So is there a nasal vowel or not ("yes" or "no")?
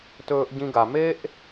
yes